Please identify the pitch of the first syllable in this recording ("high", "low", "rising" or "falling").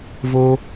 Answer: high